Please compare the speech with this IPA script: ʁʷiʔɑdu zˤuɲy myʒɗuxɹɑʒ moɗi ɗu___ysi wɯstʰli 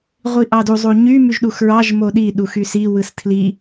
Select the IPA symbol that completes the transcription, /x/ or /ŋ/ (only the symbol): x